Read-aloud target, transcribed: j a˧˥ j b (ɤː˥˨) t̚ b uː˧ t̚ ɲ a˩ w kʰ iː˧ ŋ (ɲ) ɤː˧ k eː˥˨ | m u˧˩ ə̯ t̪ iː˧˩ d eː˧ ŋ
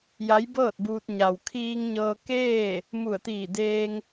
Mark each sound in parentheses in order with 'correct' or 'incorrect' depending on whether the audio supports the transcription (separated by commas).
correct, correct